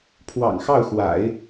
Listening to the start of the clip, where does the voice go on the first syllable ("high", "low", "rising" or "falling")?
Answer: low